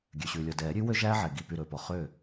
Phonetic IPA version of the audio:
ɡʲ ø˩ ɕ ʉː˩ lʲ ɔ˩ d ɛː˨˩˦ ɾʲ ʉ˩˥ w ø˥ ʒ æː˥ ʕ ɛ˩ ɡ i˧˩ p y˧˩ ɾ ɵː˩ p ɔ˩ χ øː˥˩

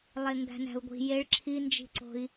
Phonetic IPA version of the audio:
lˠ e ŋ ɡ æ̤ n æ̤ u̯ ɡʷ i̤ j e ɭ ǁʰ i n d͡ʒ i̤ ǀ o̤ i̯

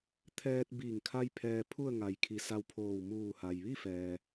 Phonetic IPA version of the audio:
t̪ʰ ɛː˧ t̚ b iː˧˩ ŋ kʰ a˧ j pʰ ɛː˧ pʰ u˥˨ ə̯ ŋ a˩˧ j kʰ i˩˧ s a˧ w pʰ oː˧˩ w m uː˧˩ h a˩ j ʋ i˥˨ f ɛː˩

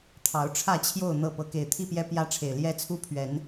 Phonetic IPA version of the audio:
t̪ʰ ɑ˨˦ ʊ̯ ʈ͡ʂʰ ä˥˨ t͡ɕʰ j o˥˨ ʊ̯ n̪ ɤ˥˨ p ɤ˨˦ k e˨˩ ɪ̯ t̪ʰ i˥˨ p j ɛ˦ p j ä˦ ʈ͡ʂʰ e˨˩ ɪ̯ l j ɛ˦ t͡sʰ u˦ pʰ ɥ ɛ˨˦ n

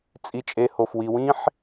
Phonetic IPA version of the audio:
t͡sʼ i˨ t͡ʃʼ e˨ h o˩ f w i˨ w ĩ˦ ħ

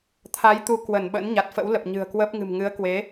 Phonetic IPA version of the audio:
t̪ʰ a˨˦ j t̪ u˨˦ k w ə˧˩ n ɓ ə̰ː˧˥ n ɲ a˨˩ t̚ f ə̰˧˥ w l ə˨˩ p̚ ɲ ɨ̤˨˩ ə̯ k w əː˦˥ p̚ ŋ ɨ̤˨˩ m ŋ ɨ˨˦ ə̯ k w e˨˦

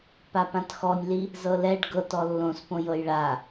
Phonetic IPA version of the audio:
p a p ã t x ɔ nʲ l i | z ɤ l ɛ ɖ ɡ ɤ t ɔ lː õ s p õ j ɤ j ɭ a

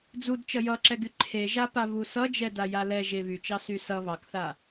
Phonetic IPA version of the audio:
d͡z u d t͡ʃ ʌ j ʌ ǁ ɛ ɡ y ǃʰ e ʒ a p a β u s ʌ d͡ʒ ɛ d a j a l ɛ ʒ e β y t͡ʃ ɑ s y s ʌ β ɑ k θ a

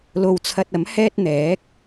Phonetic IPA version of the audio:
l o˧ w t͡sʰ ɐ˧ t̚ ɐ˨˥ m h ɛː˥ t̚ n̪ ɛː˨˥ k̚

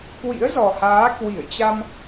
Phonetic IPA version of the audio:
k w ḭ˧˥ ə̯ z ɔ˨˩ h aː˨˦ k w i˧˩ ə̯ t͡ɕ a˧ m

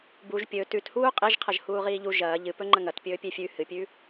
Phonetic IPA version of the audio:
b u ʒ pʲ ɵ t ʉ t h uː qʼ e ʒ qʰ ɐ ʒ h uː ʁ iː ʎ u ʒ ɐː ʎ ɨ p ɵ ŋ͡ǃ ɐ ŋ ɐ t pʲ ɵː pʲ e fʲ ʉ h ɨ pʲ ʉ

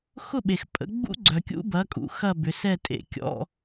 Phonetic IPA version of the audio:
x ʊ˥˨ ɓ e˩ x pʼ ə̰˩˥ ɡ͡b ṵ˦˥ ɡ͡ǀ œ˩ kʲ ṵ˦˥ b ɐ˩˥ kʼ ṵ˩ x ɐ˥˨ b ʏ˩˧ s ɛ˥˨ tʼ ḛ˩˧ kʲ ɔ̰˧˥˧

